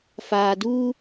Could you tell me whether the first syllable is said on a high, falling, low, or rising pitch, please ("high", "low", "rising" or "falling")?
low